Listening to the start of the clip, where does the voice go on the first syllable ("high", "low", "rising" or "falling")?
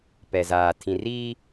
low